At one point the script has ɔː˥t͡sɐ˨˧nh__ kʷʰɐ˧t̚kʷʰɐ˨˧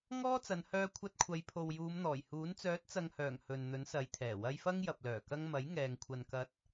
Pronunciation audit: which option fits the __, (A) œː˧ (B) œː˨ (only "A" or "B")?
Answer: A